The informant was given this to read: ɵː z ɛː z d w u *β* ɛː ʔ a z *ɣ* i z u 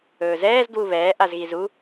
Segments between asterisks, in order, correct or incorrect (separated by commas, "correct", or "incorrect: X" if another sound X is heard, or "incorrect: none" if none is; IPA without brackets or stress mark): correct, correct